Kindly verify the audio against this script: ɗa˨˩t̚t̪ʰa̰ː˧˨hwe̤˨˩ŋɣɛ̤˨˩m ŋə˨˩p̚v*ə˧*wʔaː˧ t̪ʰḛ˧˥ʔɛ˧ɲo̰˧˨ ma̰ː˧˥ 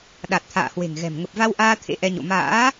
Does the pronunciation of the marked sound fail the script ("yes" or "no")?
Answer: yes